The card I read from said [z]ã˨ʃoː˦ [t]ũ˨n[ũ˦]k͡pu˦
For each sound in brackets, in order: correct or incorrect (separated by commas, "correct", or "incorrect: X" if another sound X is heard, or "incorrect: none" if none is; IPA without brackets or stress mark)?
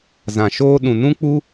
correct, incorrect: ɗ, correct